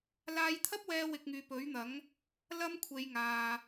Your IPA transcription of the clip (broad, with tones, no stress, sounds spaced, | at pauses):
l aː˧ j t̪ʰ ɐ˥ p̚ w ɛː˧ w ɪ˧ k̚ ŋ yː˨˧ p ɵ˨˥ ɥ n̪ ɐ˨˥ ŋ | l ɐ˥ m kʷʰ e˨˧ j ŋ aː˨